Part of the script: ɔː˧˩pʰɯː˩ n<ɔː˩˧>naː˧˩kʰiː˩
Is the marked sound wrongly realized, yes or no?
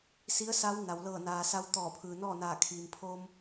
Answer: yes